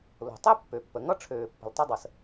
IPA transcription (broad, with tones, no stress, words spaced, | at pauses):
lo̤˩tˤe˥pːø˩pːə˩ ŋʌ˥ʈ͡ʂʰøː˩pːə̤˩l tˤɐ˥dˤə˩s